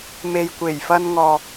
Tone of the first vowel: low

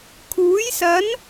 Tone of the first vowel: rising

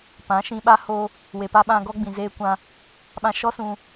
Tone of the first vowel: rising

